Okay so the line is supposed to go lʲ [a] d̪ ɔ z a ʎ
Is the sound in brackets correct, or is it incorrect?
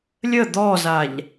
incorrect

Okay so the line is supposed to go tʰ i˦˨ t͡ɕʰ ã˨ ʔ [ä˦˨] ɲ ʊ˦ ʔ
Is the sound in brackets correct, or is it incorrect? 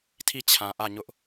correct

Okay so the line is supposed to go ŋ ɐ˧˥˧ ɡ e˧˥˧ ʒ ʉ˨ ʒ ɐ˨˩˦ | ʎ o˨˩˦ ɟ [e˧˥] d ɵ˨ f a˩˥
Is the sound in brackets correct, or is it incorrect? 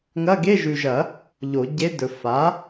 correct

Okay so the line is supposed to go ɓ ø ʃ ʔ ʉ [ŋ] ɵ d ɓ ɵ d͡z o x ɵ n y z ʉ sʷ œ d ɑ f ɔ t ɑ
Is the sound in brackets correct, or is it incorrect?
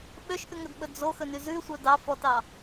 correct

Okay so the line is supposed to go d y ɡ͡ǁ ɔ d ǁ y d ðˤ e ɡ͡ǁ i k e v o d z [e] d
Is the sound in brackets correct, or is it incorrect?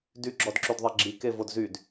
incorrect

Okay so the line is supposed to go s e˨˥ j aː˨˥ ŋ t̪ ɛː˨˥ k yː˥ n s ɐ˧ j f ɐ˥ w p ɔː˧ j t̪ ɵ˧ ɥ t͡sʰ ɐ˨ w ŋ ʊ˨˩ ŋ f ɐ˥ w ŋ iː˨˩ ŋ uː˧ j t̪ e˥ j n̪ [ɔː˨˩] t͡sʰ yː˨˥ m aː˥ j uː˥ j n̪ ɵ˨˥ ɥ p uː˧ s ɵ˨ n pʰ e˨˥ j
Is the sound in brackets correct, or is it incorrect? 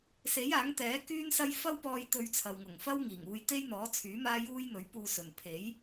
incorrect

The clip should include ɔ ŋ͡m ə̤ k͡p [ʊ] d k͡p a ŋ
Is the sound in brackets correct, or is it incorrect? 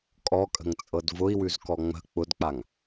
correct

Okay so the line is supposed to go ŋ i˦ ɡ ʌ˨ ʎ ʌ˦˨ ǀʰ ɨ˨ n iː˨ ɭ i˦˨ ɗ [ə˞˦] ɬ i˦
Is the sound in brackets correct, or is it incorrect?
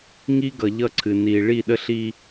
incorrect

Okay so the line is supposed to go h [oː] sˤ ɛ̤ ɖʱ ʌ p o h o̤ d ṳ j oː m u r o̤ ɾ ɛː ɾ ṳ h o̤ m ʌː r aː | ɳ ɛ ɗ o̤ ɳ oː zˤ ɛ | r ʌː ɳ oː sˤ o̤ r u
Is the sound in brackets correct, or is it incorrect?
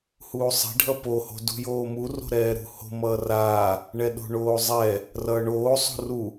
incorrect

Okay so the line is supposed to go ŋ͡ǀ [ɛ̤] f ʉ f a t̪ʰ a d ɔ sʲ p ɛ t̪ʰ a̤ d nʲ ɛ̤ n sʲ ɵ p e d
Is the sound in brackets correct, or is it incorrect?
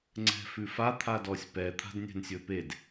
correct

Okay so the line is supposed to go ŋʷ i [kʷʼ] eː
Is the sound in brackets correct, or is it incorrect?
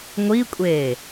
correct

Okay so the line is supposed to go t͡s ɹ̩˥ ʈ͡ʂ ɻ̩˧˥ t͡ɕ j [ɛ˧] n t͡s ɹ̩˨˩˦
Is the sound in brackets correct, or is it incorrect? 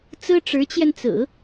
correct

